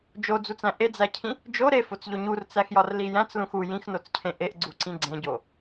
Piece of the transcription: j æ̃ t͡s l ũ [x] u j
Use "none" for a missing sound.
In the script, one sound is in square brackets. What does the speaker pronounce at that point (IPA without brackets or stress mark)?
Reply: x